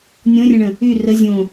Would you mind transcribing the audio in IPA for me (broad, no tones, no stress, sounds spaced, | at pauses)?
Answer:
nʲ õ rʲ ə̃ ɳ ə̃ | y r ə zʲ õ